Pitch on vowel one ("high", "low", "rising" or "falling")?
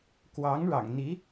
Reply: rising